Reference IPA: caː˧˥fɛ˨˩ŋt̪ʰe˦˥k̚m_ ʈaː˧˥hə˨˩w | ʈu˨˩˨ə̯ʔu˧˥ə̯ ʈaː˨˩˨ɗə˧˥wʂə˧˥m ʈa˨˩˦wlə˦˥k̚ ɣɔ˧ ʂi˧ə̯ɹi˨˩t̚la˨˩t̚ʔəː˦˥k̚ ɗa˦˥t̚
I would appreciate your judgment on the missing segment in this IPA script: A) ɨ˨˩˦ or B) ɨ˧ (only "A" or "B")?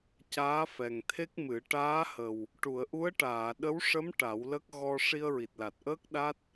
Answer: A